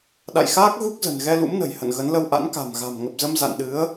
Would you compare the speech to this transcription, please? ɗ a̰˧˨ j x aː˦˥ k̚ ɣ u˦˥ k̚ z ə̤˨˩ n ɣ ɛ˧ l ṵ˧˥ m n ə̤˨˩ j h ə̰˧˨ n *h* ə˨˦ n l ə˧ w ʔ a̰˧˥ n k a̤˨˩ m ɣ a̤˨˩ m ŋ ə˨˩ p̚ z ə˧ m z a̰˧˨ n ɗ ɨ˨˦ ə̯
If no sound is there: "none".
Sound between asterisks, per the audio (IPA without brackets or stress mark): ɣ